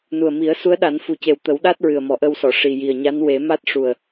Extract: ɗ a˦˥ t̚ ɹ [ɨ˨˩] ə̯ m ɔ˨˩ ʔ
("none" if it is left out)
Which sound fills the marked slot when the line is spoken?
ɨ˨˩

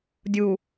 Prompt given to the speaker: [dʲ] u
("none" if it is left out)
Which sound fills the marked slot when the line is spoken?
dʲ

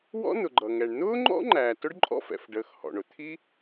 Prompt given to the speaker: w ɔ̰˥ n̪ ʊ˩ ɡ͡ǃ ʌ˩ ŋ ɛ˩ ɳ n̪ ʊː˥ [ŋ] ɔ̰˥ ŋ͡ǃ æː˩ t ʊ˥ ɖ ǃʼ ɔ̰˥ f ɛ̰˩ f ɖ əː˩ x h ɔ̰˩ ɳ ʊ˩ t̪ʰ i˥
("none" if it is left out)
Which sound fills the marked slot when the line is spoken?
ŋ͡ǃ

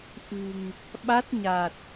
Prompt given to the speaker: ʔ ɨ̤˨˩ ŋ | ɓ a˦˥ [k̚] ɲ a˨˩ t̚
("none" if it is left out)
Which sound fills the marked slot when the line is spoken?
t̚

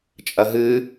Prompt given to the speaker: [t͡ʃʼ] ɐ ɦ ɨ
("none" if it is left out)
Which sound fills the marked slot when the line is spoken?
t͡ʃʼ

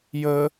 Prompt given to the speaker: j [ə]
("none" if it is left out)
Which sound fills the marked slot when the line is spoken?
ə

